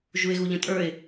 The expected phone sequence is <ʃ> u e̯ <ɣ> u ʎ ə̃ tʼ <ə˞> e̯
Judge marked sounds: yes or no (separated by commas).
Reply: no, yes, yes